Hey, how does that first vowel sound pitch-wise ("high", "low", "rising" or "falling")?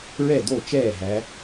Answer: falling